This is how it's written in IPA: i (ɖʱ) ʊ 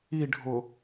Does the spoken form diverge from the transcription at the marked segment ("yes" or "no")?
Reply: no